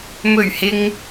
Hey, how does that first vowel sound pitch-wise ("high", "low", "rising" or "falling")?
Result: low